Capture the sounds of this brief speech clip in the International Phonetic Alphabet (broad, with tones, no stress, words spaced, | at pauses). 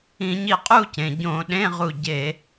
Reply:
ĩ˧˩˧ɲi˧qʼu˥˧cẽ˩ ɟõ˧˩˧ɗẽ˧˥˧ʁu˧˩ ɟe˧˩˧